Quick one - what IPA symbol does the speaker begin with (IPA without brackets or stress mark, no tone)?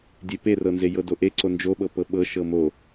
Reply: dʲ